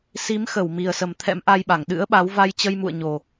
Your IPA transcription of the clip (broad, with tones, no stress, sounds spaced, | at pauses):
s i˨˦ m x ə˧˩ w m i˨˩ ə̯ s ə˨˩ m t̪ʰ ɛ̰˧˥ m ʔ a˧ j ɓ a˧˩ ŋ ɗ ɨ̰˧˥ ə̯ ɓ a˨˦ w v a˧ j t͡ɕ ə˧ j m ṵ˧˨ ə̯ ɲ o˨˩